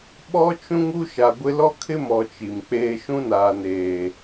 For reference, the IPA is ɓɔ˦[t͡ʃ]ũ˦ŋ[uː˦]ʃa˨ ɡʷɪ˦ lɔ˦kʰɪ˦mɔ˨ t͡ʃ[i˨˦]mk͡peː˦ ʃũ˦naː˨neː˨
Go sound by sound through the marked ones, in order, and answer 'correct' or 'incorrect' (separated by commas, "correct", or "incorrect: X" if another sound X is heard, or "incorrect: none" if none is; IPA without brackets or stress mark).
correct, incorrect: u˦, incorrect: i˨